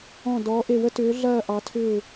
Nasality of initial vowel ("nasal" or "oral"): nasal